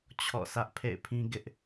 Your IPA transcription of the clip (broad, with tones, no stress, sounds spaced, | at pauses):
t͡ɕʰ ɔ̰˦˨ s ä˦ ʔ pʰ ḛ˦˨ ɪ̯ pʰ ĩ˦ ɡ ɪ˦ ʔ